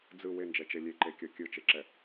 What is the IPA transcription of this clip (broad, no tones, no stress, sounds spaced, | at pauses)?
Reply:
d͡z ɯ w e n d͡ʒ ɛ t͡ʃ e lʲ e ǃ e kʲ ɤ kʲ ɯ t͡ʃ e ǁ ɛ